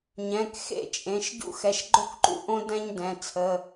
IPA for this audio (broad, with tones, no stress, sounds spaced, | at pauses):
ɲ ɛ̃˩˧˩ k x ḛ˥˧ t͡ʃʼ ẽ˩˧˩ ʃ ɟ ṵ˥˧ x ɛ˩˧˩ ʃ ɡ͡ǃ o˥ k ǃ ṵ˥˧ ʔ õ˥ d ɛ̃˥ ɲ d ɛ̃˩˧˩ t͡sʰ ə˩˧˩